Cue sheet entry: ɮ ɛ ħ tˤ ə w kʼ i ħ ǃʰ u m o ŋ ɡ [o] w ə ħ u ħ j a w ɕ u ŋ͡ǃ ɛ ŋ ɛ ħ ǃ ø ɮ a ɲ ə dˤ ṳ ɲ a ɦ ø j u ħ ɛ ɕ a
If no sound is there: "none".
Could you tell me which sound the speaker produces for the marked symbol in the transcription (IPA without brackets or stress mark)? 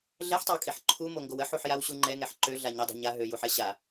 o